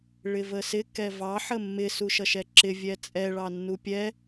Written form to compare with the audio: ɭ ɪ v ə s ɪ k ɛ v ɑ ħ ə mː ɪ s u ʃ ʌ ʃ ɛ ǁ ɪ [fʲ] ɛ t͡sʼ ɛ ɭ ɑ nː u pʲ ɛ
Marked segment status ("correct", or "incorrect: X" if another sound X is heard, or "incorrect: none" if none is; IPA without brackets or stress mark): incorrect: vʲ